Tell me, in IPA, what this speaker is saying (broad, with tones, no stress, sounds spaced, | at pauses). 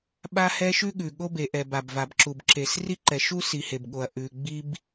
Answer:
ɓ a˥ h ɛ˥ ʃ ʉ˥ ɠ ʉ˩ ɠ o˥ b e˩ ʔ ɛ˩ b a˩ b v a˩ b ǁ u˩ b ǁ e˩ s r i˥ ǃ ɛ˩ ʃ u˥ s i˩ h e˩ b ɠ o˩ ɐ̯ ʔ ʉ˩ ɡ͡b i˥ b